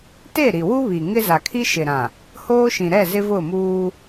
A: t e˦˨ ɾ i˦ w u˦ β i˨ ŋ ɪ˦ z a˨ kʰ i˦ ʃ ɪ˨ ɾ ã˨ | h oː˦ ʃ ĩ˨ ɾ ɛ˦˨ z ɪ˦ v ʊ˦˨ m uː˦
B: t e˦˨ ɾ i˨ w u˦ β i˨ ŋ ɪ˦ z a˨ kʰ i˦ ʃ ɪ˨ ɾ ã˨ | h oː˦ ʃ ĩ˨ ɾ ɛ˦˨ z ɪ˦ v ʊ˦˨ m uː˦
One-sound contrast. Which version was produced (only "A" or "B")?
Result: B